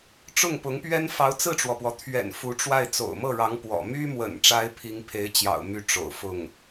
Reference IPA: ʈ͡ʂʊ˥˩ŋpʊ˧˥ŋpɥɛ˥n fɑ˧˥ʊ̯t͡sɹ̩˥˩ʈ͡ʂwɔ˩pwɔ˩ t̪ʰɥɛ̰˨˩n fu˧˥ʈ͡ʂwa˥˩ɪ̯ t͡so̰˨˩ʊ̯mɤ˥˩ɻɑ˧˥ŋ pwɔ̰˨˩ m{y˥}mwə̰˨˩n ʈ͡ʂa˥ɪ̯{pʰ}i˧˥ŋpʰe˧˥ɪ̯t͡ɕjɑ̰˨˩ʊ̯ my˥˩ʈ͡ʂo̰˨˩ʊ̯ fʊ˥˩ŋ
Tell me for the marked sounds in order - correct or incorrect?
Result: correct, correct

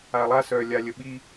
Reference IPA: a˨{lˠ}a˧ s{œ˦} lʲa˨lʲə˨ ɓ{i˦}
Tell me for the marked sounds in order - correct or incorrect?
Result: correct, incorrect, incorrect

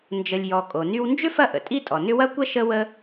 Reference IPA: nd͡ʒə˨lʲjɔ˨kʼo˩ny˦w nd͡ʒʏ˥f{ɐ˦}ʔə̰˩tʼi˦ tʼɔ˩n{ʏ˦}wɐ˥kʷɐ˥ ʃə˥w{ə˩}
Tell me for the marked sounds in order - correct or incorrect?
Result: correct, correct, incorrect

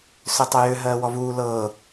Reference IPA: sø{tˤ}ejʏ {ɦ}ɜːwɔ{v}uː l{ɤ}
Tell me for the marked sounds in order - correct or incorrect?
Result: correct, correct, correct, incorrect

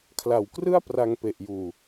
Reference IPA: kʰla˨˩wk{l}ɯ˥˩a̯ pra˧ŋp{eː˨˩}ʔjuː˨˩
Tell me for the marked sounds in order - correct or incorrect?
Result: incorrect, incorrect

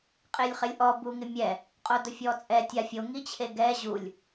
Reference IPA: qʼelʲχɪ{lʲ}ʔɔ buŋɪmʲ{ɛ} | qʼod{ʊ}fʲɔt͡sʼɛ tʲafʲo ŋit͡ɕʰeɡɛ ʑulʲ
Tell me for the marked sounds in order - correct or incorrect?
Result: correct, correct, correct

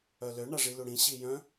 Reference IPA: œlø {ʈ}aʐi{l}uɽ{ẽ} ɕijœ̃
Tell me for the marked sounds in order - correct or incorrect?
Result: incorrect, correct, incorrect

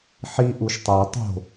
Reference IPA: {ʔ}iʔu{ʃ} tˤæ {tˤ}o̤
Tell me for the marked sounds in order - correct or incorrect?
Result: incorrect, correct, correct

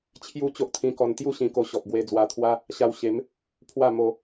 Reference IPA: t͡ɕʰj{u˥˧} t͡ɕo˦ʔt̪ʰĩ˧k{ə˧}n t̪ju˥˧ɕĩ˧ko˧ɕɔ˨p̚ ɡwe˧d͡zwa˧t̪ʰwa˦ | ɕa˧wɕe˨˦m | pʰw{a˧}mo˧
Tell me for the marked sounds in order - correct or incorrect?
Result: correct, incorrect, incorrect

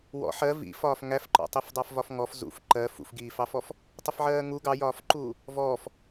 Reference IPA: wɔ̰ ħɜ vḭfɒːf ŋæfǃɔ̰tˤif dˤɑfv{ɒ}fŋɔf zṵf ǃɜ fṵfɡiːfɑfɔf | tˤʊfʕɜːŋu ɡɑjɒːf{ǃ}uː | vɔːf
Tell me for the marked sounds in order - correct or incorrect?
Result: correct, correct

